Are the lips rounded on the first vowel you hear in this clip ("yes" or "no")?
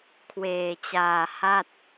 no